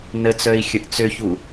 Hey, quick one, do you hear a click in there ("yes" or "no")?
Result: no